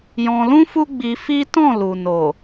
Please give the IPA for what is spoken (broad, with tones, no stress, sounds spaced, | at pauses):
j ɔ̃˧ l ũ˦ f u˦ ɡ͡b i˧ f i˦ t ɔ̃˦˨ l u˨ n o˨